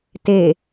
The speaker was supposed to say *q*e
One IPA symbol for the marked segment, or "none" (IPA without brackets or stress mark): t